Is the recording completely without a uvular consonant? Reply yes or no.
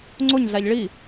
yes